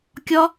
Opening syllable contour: high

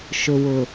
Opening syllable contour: low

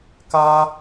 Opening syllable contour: high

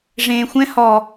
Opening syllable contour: low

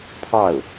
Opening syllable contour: falling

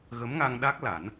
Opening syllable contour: rising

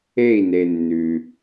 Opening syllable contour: falling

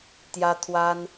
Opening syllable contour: high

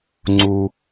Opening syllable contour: high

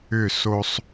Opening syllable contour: falling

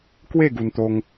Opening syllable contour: falling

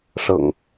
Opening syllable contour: low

